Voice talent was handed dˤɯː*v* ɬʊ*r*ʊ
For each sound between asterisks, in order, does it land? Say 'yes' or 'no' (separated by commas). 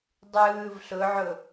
yes, no